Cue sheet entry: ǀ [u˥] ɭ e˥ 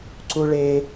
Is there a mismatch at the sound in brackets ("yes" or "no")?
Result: no